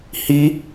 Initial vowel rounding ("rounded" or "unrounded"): unrounded